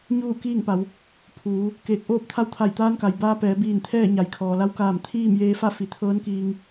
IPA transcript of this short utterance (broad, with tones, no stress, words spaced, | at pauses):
ɲuː˥˨ kiː˥˨ŋpa˩˧w | pʰuː˩˧ | keː˧˩k̚ʔoː˥˨p̚t̪ʰa˥˨w t̪ʰa˧˩jt̪aː˧˥nka˩j baː˧pɛː˩˧ biː˧˩nt̪ʰɛː˥˨ ɲa˩˧jkʰɔː˩la˧˥w kaː˧˩m t̪ʰiː˥˨mjeː˧fa˥˨ fi˩˧t̪ʰɤː˧˥nkiː˧ŋ